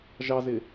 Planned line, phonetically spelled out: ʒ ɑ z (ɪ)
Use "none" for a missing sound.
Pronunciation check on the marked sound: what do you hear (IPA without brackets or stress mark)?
ɪ